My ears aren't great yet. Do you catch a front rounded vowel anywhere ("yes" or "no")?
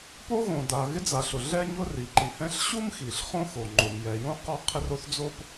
no